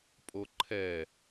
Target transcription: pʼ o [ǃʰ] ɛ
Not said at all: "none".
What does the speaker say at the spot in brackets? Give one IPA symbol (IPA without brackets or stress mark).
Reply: ǃʰ